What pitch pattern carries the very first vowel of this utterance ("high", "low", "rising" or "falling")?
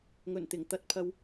low